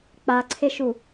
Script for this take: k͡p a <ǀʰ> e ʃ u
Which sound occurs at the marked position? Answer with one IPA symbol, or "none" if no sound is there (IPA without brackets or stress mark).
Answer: ǀʰ